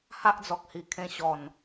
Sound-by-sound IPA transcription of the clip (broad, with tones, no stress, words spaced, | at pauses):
ha˦ʔd͡zɔ˨k̚hi˨˩ kʰẽ˧ɕɔ˨˩n